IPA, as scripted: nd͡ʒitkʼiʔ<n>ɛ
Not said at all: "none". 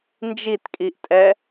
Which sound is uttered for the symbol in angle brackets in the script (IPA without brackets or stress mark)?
tʼ